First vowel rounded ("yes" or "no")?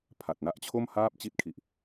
no